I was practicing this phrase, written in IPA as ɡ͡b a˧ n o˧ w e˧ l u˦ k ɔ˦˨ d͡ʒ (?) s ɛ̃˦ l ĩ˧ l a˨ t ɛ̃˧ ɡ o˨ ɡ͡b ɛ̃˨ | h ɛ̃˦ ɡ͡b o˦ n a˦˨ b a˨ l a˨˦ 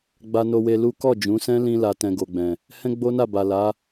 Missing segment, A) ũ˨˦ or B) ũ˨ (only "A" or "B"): A